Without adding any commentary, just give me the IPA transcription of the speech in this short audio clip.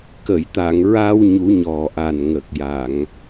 k ə˨˩˨ j t̪ a˨˩˨ ŋ ɹ a˧ w ɲ u˨˩˦ ɲ ɔ˨˩ ʔ a˨˩ n ŋ ə˨˩ k̚ j a˨˩˨ ŋ

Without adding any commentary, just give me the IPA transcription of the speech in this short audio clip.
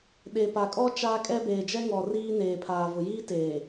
ɗ e˨ p a˨ kʼ ɔ˦ t͡ʃ aː˦ kʼ ɛ˦ b eː˨ d͡ʒ ɛ˦ ŋ ɔ˨ r iː˦ n eː˨ pʰ aː˨ v ʊ˨ j iː˦ t eː˨

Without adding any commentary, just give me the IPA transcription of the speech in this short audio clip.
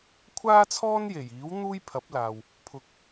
kʷʰ aː˥ t͡sʰ ɔː˥ n j e˨˩ j iː˨˥ w n̪ uː˥ j pʰ ɐ˨˥ p̚ l aː˨ w | pʰ ʊ˨ k̚

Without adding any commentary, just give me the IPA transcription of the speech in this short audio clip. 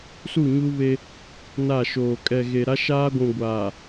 s u˦˨ ɲ u˦ β e˦ | n a˦˨ ʃ oː˨ kʼ ɛ˨ ɣ e˨ ɾ a˦ ʃ aː˦ ɡʷ ũ˨ ɡʷ aː˨

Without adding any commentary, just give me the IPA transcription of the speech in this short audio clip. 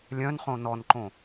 lʲ œ̃ n χ õ n ɔ n ǃ õ

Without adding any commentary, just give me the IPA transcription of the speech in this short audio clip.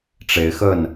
ʈ͡ʂ e˨˦ ɪ̯ x ə˥˨ n

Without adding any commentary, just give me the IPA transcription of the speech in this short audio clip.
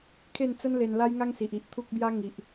kʰ e˥˧ n t͡s ə˦ n l e˧ n l a˦ j ŋ a˦ ŋ s i˨ ʔ i˨ ʔ t̪ʰ u˦ k̚ b j a˦ ŋ i˨ ʔ

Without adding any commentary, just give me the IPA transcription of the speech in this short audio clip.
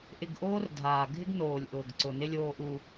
ʔ ɪ˨ ɡ ʔ oː˦ r dʱ aː˨ ɡʱ ɪ˦ ɡ n oː˨ lʲ ʔ ʊː˨ ɡ ǀ ʊ˨ n ɪ˦ lʲ oː˦ ʔ u˦

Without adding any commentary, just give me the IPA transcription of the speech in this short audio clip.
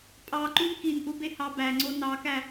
pʼ ɑ ǃ u n k i n ʔ u b e h ɑ b æ ŋ͡ǀ o n ɑ k æ

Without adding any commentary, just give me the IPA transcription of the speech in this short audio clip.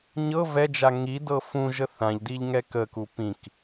ɲ ɤ v ɛ d͡ʒ a ŋ i d ɤ f ũ ʒ ə θ ã ʎ d i ʎ ŋ ɛ k ə k u p ĩ k

